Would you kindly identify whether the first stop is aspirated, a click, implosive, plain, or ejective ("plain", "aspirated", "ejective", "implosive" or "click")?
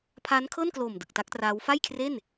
aspirated